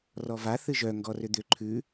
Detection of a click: present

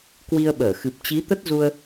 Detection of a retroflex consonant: absent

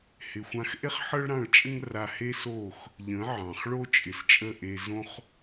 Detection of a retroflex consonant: present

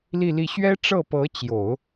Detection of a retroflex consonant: present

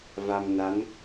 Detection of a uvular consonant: absent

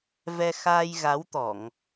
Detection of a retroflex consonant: absent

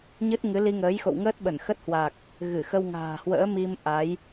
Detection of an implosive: present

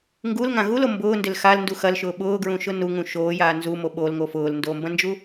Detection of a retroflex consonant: absent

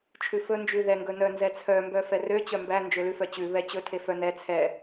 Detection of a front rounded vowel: present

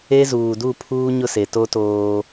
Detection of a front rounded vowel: absent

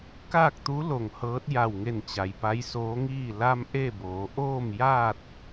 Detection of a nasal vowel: absent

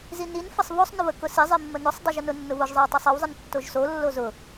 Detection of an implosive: absent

